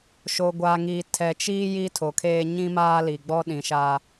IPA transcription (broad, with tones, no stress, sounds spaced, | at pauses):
ʃ o˨ ɡʷ aː˨ ŋ iː˨ tʰ ɛ˨ t͡ʃ iː˦ j i˦ tʰ o˨ kʰ eː˦ ɲ ĩ˦ m aː˦ l i˨ ɡ͡b ɔ˦ ɗ ĩ˨ ʃ a˦